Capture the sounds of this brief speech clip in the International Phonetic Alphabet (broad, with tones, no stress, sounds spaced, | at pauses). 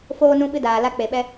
f oː˧ n ũ˧ ɓ ɨ˧ d aː˨ l a˧ k͡p e˨ ɓ ɛ˧